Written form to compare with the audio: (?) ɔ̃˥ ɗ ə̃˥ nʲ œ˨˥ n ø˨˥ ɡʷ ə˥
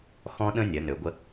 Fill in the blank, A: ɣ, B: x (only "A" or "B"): B